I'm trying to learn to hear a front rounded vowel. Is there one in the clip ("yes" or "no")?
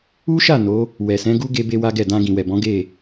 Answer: no